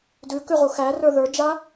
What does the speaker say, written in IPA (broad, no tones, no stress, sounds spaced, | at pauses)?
d ʉ k ʉ ʁ u x æ r ə˞ ð ə˞ d͡ʒ a